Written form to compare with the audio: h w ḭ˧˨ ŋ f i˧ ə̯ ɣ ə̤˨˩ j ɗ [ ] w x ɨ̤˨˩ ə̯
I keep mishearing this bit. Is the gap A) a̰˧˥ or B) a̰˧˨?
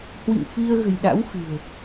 A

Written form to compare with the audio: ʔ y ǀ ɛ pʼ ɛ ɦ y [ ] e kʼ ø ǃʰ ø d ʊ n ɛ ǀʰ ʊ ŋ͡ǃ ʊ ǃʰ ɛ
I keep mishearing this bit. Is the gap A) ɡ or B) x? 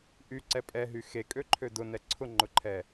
B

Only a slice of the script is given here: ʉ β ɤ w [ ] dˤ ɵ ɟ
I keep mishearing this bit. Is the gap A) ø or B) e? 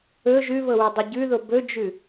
B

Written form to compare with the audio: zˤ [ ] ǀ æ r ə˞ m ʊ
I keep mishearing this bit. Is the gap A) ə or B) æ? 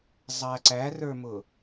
B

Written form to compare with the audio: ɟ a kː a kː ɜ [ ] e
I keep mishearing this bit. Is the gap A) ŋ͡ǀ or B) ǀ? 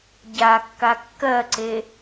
B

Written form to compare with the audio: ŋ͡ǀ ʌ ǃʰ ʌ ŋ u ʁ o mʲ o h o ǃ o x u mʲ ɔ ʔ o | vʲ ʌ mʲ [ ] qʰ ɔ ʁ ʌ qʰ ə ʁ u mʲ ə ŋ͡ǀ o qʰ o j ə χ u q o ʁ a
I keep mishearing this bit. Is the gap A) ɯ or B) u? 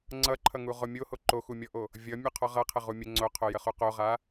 B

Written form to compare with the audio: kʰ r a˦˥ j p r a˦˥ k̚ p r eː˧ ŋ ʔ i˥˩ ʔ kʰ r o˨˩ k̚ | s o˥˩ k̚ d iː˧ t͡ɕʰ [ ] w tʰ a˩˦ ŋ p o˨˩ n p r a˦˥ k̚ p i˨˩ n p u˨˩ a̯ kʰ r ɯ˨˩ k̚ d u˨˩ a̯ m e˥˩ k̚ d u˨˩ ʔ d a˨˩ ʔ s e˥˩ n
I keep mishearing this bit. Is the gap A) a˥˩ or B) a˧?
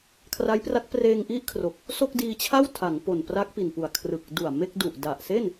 A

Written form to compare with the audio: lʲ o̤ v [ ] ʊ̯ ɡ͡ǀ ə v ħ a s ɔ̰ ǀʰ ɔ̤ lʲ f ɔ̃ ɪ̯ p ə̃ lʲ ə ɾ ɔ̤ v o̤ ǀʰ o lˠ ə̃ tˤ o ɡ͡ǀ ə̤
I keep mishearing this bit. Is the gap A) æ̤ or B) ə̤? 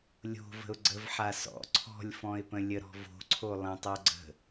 B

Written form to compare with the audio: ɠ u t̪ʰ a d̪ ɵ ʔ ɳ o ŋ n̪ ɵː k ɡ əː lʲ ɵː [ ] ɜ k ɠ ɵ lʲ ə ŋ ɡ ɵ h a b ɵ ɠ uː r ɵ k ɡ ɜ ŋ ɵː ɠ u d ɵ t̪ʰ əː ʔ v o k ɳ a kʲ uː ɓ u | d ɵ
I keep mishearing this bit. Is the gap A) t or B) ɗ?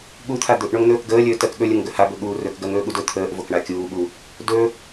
A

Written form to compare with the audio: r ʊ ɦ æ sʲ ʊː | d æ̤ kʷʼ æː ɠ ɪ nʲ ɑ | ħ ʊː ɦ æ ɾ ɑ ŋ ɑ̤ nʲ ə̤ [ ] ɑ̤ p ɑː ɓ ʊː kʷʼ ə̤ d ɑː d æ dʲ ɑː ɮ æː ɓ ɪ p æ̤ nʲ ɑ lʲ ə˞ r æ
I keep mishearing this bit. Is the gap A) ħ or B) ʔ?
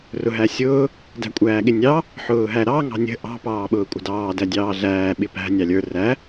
B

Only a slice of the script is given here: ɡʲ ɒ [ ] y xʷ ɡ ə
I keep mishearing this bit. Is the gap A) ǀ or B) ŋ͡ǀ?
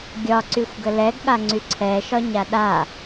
A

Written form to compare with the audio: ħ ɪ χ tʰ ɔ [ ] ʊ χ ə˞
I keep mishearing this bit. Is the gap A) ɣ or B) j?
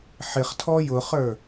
B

